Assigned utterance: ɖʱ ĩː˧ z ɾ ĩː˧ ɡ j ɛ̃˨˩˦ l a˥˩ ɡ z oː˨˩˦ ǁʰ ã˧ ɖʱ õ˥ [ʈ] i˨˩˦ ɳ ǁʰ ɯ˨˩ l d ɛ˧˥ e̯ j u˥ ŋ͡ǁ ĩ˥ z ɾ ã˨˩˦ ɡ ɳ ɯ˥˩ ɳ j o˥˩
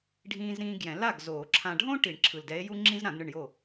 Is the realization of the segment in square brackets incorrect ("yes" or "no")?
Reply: no